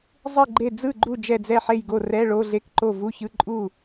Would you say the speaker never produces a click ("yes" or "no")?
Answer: no